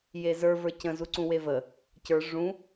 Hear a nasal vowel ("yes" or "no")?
yes